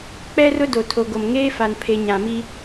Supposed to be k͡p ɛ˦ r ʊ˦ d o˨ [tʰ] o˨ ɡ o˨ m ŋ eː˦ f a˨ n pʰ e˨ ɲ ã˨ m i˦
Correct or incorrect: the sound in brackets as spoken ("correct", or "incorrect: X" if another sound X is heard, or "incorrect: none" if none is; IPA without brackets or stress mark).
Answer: correct